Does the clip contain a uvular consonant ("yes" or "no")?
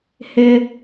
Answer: no